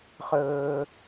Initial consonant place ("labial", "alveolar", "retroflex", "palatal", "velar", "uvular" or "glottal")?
uvular